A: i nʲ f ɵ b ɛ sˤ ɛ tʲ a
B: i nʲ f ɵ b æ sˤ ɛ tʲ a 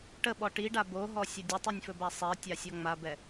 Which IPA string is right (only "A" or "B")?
B